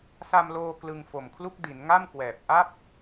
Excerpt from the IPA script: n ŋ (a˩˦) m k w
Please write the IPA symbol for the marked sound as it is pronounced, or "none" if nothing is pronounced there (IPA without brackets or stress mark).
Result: a˥˩